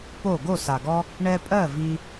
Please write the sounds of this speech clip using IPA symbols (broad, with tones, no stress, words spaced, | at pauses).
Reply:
po˦˨ ɡo˦˨sa˨ɡɔ˦ | ɳɛ˧pʼɜ˦˨ vi˦